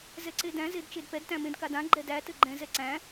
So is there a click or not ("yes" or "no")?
yes